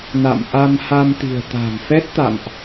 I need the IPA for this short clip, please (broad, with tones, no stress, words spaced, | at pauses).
na̰˧˨mʔa˧mha˧mt̪i̤˨˩ə̯ t̪a̤˨˩ŋfɛ˦˥t̚t̪a̰˧˨mʔ